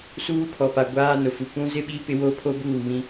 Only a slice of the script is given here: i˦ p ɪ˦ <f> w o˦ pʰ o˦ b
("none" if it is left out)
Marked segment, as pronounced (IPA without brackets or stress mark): none